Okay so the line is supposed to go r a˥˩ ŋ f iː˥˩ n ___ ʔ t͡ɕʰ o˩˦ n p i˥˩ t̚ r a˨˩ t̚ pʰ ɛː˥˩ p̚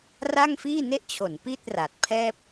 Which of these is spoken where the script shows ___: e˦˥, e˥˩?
e˥˩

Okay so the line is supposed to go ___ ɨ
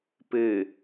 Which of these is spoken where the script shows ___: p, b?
p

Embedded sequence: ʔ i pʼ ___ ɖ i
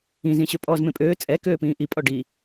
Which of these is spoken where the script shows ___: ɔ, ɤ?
ɔ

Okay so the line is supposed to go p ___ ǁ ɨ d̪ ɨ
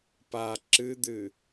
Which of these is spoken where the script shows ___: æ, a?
a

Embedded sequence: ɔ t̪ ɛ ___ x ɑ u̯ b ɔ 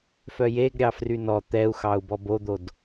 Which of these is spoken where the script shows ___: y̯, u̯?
u̯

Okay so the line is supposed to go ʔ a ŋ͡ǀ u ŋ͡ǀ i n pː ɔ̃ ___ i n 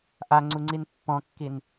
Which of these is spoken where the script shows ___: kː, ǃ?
kː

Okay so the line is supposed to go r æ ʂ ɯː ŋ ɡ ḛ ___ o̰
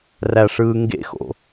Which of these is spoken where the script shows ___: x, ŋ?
x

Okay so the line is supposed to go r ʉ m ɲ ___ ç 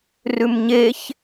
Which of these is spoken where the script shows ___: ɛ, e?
e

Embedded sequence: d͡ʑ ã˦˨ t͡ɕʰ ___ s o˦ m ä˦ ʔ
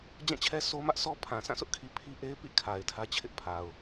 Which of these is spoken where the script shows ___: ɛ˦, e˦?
ɛ˦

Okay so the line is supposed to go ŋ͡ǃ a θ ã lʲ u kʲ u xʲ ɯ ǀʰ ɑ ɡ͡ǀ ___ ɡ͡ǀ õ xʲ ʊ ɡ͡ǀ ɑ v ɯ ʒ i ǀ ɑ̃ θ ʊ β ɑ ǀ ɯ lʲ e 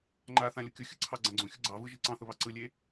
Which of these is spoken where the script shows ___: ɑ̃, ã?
ã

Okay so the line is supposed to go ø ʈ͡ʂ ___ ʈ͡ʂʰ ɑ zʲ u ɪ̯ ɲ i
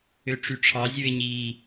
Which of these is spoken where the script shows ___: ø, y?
y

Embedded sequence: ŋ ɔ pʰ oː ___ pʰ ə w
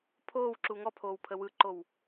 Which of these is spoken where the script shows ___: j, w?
w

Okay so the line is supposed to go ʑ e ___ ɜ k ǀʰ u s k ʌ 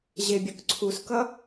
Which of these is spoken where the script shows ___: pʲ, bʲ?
bʲ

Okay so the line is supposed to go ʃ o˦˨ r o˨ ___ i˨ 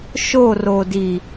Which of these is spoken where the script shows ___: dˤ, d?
d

